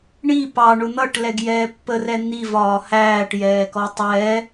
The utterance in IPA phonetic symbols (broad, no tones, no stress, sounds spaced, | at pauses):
ɳ i p ɑ ɳ ʊ n̪ ʌ ʈ l ɛ ɡ j ɛː pː ə r ɛ n̪ i v ɒː h æː ʈ j ɛː k ɔ tˤ ɛː